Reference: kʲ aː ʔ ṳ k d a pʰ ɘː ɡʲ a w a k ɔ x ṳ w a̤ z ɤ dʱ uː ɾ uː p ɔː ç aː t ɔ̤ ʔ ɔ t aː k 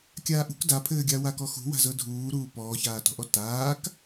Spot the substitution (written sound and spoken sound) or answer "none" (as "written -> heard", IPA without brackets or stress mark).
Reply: none